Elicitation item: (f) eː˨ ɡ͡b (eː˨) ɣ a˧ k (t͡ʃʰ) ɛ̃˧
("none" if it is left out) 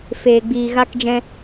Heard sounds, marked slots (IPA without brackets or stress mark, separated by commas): f, iː˨, d͡ʒ